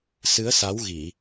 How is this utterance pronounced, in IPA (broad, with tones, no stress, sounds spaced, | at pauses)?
s ɨ˨˦ ə̯ s a˨˦ w ɣ i˧˩˨